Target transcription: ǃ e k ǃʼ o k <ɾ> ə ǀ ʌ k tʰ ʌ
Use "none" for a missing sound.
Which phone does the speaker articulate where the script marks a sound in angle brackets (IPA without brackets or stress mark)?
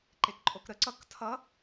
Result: ɾ